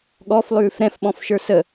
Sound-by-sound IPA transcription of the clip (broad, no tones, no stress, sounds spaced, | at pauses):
ɠ ɔ f lˠ ʉː f ɾ ɛ̃ f ɓ ɔ̃ f ʃ ə˞ s ə